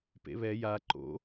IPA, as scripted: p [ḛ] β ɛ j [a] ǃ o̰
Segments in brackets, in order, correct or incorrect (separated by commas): correct, correct